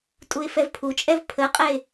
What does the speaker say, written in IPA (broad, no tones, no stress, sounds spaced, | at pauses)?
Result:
tʼ u ɪ̯ f ɛ v pʰ u t͡ʃʼ ɛ v pʰ ə qʼ ɛ ɪ̯